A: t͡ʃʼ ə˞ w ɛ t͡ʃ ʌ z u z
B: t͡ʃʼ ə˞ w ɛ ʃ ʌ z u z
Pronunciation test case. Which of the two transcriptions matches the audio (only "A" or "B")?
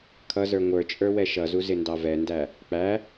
B